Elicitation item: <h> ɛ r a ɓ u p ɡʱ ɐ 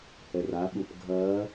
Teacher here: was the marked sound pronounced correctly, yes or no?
yes